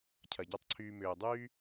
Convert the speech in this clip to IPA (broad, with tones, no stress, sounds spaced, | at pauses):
cʰ ɐ˨ ɟ ɐ˦˨ tˤ ǀʰ yː˧ m ʏː˨ dˤ yː˦